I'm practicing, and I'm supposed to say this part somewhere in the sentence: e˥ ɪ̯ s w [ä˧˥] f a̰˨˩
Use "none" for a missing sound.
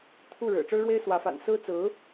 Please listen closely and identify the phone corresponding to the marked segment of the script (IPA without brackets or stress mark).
ä˧˥